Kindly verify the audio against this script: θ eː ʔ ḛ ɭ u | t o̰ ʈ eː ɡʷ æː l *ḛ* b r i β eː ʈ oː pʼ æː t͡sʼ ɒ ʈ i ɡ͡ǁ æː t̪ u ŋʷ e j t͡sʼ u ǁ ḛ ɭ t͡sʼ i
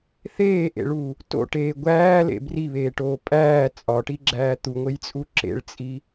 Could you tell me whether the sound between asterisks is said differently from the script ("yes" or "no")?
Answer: no